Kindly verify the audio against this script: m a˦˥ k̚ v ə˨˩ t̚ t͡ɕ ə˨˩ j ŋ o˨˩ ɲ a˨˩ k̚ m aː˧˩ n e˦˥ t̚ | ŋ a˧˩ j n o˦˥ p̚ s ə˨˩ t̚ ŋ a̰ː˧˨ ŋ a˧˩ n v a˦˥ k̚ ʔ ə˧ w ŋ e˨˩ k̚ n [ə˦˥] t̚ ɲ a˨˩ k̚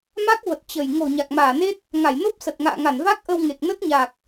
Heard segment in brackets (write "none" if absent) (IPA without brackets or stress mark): ə˦˥